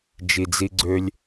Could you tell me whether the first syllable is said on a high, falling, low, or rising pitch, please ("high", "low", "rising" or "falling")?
low